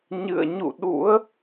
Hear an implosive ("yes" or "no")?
yes